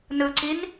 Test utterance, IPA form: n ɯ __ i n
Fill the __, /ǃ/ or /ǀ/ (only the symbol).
ǀ